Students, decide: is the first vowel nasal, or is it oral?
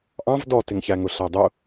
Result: nasal